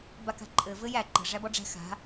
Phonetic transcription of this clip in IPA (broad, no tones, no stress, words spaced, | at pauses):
baka̤ǃʼɘ vɘjæ ǃə̤ ʐæbɔɖ͡ʐæ̤ xa̤